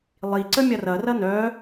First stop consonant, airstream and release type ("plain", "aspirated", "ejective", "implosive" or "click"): click